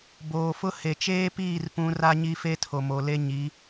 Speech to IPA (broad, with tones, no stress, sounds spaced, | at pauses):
b oː˨ f ʊ˦ h e˨ t͡ʃ eː˦ p iː˦˨ r p ũ˦ r a˦ ɲ i˦ f e˦ tʰ o˨ m o˨ l e˦ ɲ i˨˦